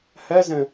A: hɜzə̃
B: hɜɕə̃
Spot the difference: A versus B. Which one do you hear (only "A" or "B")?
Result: A